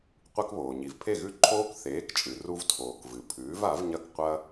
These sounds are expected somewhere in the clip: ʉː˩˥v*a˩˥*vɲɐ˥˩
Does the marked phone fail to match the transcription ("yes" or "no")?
no